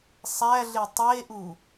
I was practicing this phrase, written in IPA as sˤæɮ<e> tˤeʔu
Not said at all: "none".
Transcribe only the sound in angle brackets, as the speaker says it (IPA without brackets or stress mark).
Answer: e